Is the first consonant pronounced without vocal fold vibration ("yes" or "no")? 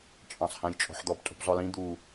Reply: yes